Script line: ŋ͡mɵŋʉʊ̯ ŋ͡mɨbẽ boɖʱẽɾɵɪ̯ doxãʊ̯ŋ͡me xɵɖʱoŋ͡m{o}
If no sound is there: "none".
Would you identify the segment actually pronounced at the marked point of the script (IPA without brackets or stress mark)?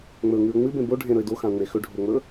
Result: ɵ